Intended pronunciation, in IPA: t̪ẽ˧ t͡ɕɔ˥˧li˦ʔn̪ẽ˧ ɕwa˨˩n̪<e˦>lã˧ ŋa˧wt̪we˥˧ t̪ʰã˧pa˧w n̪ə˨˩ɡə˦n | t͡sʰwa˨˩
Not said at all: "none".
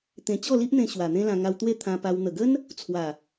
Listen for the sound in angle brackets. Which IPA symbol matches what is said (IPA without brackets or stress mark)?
ẽ˦